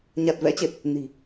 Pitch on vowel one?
low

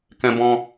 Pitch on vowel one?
high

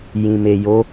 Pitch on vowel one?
low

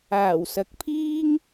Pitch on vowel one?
low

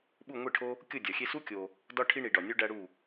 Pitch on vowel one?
falling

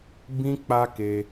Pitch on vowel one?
high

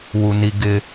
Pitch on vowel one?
low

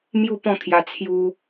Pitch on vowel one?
falling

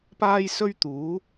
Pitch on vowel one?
high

